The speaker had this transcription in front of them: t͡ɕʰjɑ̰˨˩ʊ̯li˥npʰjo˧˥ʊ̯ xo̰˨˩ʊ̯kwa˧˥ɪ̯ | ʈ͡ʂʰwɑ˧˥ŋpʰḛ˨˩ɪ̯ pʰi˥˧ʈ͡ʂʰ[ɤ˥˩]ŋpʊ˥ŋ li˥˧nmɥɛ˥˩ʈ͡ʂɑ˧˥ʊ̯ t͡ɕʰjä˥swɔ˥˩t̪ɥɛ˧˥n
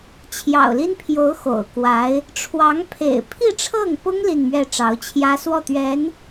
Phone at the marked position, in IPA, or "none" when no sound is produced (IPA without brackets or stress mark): ɤ˥˩